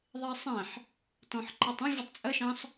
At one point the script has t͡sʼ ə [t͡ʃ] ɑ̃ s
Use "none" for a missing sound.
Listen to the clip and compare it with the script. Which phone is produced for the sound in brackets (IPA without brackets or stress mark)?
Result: ʃ